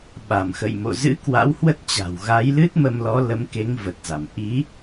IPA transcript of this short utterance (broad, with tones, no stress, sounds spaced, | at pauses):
ɓ a˧˩ m x ə̰˧˨ j m o̰˧˨ z ɨ̰˧˥ k w a̰˧˥ w h w ə˦˥ t̚ t͡ɕ a̤˨˩ w ɣ a˨˦ j l ɨ˦˥ t̚ m ə˧ m l ɔ˨˦ l ə˨˦ m k e˨˦ ŋ v ə˨˩ t̚ z a˧˩ m ʔ i˨˦